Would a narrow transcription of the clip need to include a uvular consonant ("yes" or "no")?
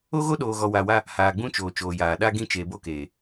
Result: no